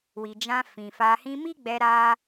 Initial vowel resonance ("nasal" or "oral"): oral